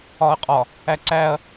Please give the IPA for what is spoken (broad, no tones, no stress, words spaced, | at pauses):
ɒɐ̯qʼɒ | æǀæɐ̯